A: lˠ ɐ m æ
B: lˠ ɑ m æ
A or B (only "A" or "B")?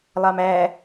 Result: B